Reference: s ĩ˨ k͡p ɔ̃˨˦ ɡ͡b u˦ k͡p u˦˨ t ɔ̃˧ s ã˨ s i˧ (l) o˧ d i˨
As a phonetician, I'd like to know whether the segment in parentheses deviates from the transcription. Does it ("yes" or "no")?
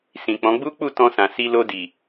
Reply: no